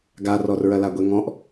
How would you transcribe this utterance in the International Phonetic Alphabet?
ɡarɔr ɹɐlaɡʷeŋɔ̃ʔ

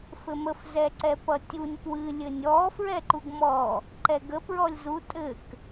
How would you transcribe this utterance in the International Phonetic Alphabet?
fɘməf zɛǀɛpʌtʲunʲ pwɨ lʲɘnʲɔ fɹɛǃuɡmɔ | ǃɛɡə pɹɔlʲzu tʼɘk

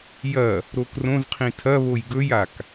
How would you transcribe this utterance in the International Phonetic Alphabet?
jɐ | ɾokrõzqʰĩ tʰɐβoj ɡɵjak

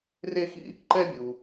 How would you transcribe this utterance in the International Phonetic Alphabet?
re˥xḭ˥ | ǃɛ˥bʲu˧

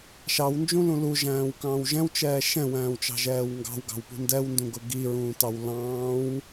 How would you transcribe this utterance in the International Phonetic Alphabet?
ʃɑwnd͡ʒũlũ luʒæ̃ːwkɑ̃ːw ʒɛ̃wt͡ʃɛː ʃɛ̃wæ̃ːwt͡ʃɑ̤ʒɛːw ŋɡɑ̤wɡɑ̤wpṳ ndɛwndũɡʊ ɡiɹũːtɑw lɑ̃ːw

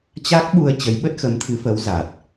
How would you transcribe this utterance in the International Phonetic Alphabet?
t͡ɕa˦˥k̚ɓu˧ə̯ t͡ɕə˨˦jɓə˦˥t̚xə˨˦m t̪ʰɨ˨˦fə˨˦w za˨˩t̚

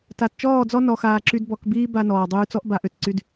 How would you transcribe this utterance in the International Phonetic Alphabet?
ta˨t t͡ʃɔː˦˨d͡zɔ˦ nɔ˧xaː˧ǁy˦d bɔ˧k biː˦ba˧ nɔː˨ dˤyː˧t͡sɔ˦ʔba˧ ʔø˧t ǀy˦d

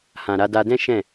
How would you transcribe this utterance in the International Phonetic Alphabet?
hã˨ɾa˧da˧dɛ̃˦ ʃɛ̃˦˨

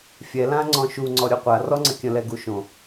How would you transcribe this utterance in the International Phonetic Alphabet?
fʲɛlãŋ͡ǀɔ̃ ʃuŋ͡ǀɔɾʲo qʷarɔŋ͡ǀə kʲə̃lɛɡu ʃõ

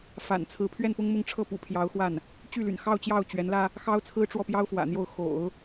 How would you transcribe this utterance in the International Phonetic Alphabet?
fa̰˨˩nt͡sʰɹ̩˧˥ pʰɥɛ˥˩npʊ˥ŋmʊ˥˧ŋʈ͡ʂʰɤ˥˩ pṵ˨˩pʰjɑ˧˥ʊ̯xwa˥˩n | t͡ɕy˥˩ly̰˨˩nxɑ˥˧ʊ̯t͡ɕjɑ˥˩ʊ̯ t͡ɕɥɛ˧˥nlä˥ | xɑ˥ʊ̯t͡sʰɹ̩˥ʈ͡ʂwɔ˥˩pjɑ˥ʊ̯ fwä̰˨˩n̪jo˥˩ʊ̯ xo̰˨˩˦ʊ̯

